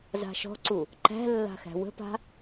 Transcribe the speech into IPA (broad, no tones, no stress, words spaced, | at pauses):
za̤ʃɔ̤ǀu | ǃæ̤ lːa̤xæ̤wə̤pa̤